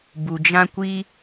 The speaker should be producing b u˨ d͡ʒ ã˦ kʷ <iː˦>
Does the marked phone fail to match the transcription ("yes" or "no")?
yes